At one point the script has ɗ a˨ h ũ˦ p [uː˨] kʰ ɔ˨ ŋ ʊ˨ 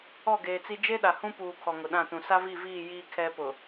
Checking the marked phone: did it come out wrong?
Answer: no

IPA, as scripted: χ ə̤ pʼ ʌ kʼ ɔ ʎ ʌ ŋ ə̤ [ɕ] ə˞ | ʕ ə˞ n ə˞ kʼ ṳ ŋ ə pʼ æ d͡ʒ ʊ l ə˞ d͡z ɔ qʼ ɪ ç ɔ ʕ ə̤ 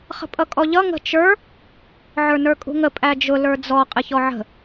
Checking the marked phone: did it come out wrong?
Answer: yes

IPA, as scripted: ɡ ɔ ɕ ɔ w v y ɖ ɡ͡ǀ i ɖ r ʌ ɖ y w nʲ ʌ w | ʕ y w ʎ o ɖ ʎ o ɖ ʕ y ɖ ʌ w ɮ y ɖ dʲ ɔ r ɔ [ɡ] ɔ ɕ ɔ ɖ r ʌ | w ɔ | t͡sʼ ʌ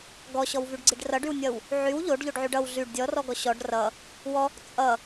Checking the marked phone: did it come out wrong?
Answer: no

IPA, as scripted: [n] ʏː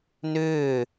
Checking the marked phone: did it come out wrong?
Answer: no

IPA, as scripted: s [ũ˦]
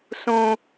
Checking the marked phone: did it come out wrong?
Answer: no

